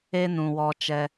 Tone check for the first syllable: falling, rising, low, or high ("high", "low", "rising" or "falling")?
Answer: high